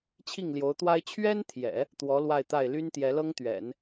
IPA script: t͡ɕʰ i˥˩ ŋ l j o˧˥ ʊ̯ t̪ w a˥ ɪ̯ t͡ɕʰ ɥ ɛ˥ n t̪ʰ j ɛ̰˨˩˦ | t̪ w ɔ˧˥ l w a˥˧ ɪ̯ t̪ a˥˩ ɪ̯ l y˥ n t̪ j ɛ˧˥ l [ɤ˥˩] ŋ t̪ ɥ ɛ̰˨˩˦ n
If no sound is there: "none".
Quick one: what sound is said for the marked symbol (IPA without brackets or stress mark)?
ɤ˥